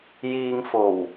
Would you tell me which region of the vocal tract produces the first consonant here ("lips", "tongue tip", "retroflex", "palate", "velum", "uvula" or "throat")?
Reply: palate